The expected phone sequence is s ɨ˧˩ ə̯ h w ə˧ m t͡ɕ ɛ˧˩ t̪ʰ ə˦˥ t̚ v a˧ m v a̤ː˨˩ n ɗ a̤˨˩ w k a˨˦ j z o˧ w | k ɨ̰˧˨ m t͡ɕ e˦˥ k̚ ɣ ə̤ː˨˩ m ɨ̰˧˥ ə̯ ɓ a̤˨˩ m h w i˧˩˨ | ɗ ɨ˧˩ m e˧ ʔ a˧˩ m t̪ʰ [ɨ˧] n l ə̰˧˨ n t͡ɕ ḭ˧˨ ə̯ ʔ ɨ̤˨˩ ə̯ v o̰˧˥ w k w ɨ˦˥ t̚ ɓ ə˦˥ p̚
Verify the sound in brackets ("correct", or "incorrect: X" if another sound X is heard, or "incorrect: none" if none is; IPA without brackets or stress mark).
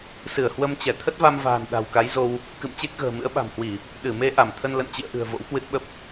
incorrect: ə˧